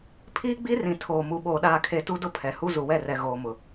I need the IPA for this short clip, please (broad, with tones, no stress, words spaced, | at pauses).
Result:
pʰiː˦ɡ͡bi˦rĩ˨ tʰoː˨mu˨ ɓoː˨ɗaː˨kʰe˨ tu˦dʊ˦ pʰɛ˨hu˦ zu˨wɛ˦˨rɛ˨ ɣoː˨mʊ˨